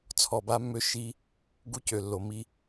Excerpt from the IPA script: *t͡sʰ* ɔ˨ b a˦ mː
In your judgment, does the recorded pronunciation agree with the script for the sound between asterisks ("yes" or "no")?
yes